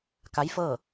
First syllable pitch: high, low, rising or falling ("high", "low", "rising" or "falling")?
rising